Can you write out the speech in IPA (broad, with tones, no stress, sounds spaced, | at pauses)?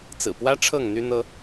t͡s ɹ̩˨˩ p w ä˦ ʈ͡ʂʰ ɤ˥˨ ŋ n̪ y˦ n̪ ɤ˦